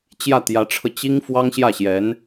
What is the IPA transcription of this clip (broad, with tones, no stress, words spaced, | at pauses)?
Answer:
t͡ɕjä˥˩t̪jä˧˥ʈ͡ʂʰɤ˧ t͡ɕi˥ŋ fwɑ˥ŋɕjä˥˩ɕjɛ˧˥n